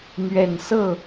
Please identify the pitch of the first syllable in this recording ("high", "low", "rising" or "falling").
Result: low